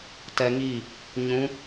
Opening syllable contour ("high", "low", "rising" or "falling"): high